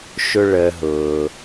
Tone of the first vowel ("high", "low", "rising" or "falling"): high